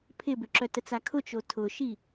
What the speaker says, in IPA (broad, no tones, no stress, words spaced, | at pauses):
pʰɪbʏǁœtət͡s akʰʊt͡ʃo tʰʊʃi